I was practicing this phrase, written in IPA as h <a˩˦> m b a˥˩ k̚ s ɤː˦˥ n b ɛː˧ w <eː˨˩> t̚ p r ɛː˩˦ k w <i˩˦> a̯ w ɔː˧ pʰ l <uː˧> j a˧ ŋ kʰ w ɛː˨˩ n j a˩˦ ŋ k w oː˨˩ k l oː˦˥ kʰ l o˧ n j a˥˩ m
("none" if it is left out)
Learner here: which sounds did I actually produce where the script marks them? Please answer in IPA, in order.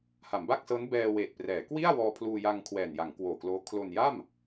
a˩˦, eː˨˩, i˥˩, uː˧

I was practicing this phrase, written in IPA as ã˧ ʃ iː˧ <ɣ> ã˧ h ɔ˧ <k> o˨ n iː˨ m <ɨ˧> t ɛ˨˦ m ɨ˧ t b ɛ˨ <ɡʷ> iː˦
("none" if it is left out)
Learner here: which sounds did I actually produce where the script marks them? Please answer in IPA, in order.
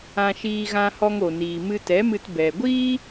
ɣ, ŋ, ɨ˧, ɡʷ

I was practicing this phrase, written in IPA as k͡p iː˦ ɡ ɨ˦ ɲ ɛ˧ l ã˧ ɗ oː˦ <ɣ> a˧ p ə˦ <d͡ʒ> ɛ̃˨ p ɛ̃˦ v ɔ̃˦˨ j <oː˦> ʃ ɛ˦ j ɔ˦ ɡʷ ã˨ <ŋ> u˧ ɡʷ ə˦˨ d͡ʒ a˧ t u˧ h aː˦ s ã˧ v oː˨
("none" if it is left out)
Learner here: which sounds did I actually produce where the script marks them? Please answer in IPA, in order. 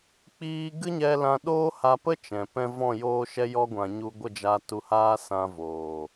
h, t͡ʃ, oː˦, ɲ

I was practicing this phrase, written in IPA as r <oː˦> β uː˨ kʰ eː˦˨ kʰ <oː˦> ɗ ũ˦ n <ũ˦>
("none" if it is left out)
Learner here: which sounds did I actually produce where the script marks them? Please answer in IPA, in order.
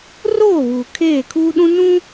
oː˦˨, uː˦, ũ˦

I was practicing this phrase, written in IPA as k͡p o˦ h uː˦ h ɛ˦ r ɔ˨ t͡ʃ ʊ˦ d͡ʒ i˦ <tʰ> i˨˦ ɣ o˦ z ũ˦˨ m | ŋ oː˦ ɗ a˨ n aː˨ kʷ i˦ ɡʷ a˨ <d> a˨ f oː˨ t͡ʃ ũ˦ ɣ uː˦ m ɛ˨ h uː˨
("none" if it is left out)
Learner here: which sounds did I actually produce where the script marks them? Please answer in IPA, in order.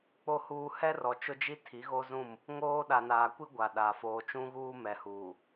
tʰ, ɗ

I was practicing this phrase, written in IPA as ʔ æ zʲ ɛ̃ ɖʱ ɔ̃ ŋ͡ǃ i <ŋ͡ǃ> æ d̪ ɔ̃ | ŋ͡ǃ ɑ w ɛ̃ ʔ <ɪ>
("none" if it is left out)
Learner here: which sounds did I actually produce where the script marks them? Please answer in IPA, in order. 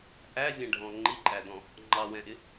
ǃʼ, ɪ

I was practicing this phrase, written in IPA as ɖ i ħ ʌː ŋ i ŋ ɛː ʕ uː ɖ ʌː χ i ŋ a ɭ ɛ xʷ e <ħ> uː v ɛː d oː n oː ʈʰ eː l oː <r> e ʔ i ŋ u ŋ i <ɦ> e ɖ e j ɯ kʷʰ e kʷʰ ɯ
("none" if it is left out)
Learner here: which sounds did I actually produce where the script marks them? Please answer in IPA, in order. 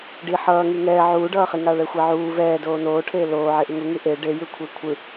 ʕ, ʕ, ʔ

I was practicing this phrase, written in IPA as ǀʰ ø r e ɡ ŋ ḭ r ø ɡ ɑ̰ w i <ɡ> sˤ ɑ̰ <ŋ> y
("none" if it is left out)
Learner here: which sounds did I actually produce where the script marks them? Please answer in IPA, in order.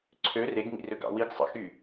ɡ, x

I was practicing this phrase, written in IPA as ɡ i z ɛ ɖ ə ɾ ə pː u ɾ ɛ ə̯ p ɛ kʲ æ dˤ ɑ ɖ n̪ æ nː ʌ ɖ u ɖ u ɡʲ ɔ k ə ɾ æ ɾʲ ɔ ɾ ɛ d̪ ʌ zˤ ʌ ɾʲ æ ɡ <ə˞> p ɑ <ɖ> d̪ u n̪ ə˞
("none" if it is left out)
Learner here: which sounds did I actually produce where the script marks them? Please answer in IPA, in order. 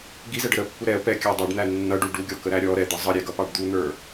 ʌ, ɖ

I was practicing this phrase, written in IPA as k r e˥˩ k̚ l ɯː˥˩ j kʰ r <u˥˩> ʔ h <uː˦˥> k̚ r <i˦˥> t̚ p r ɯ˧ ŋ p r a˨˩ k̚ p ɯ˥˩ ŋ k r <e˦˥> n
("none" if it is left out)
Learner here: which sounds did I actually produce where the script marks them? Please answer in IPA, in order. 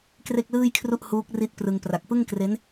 u˥˩, uː˦˥, i˦˥, e˦˥

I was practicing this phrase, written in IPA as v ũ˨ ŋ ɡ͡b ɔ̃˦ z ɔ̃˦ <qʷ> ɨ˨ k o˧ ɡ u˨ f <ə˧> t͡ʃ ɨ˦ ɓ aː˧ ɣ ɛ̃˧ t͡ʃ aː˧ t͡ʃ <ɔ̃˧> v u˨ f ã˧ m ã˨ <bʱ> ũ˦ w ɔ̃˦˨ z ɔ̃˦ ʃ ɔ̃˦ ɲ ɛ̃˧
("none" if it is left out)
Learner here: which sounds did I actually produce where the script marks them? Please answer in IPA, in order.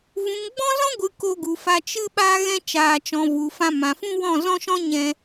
ɡʷ, a˧, ɔ̃˧, f

